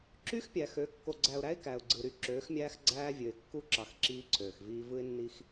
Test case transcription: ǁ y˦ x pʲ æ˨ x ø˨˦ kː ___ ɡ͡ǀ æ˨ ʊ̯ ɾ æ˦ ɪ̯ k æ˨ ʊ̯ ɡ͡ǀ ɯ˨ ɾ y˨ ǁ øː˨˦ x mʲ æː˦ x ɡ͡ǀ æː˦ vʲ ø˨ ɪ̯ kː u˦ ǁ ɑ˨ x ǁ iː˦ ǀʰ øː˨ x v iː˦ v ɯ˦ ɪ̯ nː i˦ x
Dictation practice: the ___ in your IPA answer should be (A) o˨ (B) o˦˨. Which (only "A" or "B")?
A